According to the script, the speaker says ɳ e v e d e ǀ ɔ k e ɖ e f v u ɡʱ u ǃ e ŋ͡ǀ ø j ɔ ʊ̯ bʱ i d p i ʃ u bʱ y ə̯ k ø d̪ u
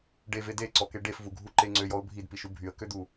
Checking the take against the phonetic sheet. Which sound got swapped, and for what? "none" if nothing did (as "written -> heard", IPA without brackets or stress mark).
ɳ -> ɖ